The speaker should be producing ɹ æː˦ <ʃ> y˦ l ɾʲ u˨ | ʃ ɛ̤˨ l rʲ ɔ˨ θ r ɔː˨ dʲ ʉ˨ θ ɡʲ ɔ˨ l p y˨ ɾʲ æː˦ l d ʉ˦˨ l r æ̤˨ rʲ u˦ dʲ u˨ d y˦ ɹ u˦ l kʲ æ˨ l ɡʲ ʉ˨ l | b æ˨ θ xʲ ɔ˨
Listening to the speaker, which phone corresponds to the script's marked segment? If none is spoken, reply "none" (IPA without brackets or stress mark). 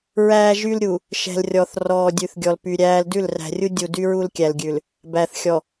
ʒ